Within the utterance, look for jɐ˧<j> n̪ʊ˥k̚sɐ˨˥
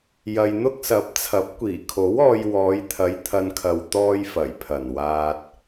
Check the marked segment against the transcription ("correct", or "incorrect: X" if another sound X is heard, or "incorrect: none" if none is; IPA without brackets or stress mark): correct